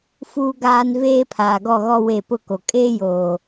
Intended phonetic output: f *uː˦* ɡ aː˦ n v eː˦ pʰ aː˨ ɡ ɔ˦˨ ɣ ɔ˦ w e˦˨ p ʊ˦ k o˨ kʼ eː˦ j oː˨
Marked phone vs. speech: correct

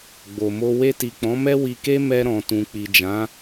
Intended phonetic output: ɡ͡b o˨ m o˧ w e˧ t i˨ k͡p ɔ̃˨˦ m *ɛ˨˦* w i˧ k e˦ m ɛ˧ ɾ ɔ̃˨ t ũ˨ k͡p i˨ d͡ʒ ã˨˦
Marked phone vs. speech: incorrect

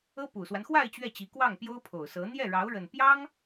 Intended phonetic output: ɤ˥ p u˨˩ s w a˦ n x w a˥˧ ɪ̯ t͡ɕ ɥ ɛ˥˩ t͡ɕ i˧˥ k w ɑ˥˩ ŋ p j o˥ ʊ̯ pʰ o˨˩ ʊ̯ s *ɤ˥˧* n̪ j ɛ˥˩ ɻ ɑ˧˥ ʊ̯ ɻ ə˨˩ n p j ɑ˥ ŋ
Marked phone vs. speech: incorrect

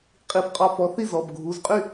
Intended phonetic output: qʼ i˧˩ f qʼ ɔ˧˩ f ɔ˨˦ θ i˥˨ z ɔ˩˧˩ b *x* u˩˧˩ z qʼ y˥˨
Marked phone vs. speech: incorrect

